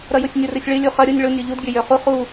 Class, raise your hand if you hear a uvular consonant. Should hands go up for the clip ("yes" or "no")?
yes